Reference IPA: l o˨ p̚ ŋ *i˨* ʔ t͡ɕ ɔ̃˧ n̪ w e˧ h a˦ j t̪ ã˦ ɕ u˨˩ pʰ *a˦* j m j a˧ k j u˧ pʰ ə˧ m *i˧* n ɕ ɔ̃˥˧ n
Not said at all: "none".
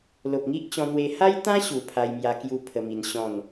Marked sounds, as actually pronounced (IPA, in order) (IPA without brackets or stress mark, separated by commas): i˦, a˧, i˧